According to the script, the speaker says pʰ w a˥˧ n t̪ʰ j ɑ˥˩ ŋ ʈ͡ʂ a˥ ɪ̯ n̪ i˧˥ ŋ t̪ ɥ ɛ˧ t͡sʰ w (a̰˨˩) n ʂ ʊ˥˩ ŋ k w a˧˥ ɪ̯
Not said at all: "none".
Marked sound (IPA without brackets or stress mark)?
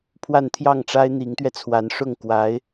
a˧˥